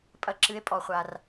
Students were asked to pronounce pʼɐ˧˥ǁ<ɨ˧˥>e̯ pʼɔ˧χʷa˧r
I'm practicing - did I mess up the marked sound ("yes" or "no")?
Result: no